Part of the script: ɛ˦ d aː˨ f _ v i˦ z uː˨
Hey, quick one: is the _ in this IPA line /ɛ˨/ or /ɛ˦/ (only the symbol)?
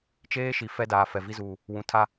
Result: ɛ˨